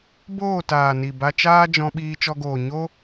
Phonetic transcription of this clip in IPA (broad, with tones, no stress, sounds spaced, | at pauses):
b oː˦˨ t aː˨ n i˨ b a˧ t͡ʃ aː˦ d͡ʒ ɔ̃˧ ɓ iː˧ t͡ʃ ɔ˧ ɡ oː˨ ɲ o˦